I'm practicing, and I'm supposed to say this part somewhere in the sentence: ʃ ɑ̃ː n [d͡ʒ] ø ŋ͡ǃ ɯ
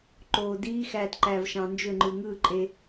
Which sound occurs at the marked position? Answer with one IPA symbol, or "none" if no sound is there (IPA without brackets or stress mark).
d͡ʒ